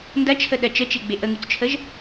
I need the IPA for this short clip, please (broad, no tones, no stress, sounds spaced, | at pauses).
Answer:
n d ɐ t͡ʃʰ ə ɗ ɜ t͡ʃ ə t͡ʃ e ɡ͡b e ʔ ə ŋ y t͡s t͡ʃʰ ə ʒ